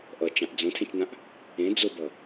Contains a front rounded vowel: no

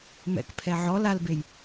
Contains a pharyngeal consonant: yes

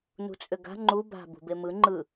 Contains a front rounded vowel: yes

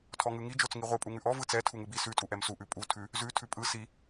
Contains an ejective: yes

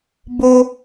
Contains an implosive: no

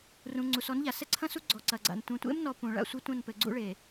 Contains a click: yes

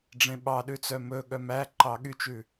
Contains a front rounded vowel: yes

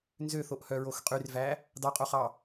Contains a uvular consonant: yes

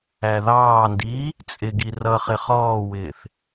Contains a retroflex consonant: no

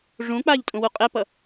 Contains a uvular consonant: yes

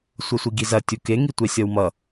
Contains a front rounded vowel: no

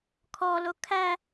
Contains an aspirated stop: yes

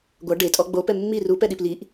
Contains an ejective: yes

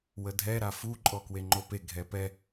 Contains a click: yes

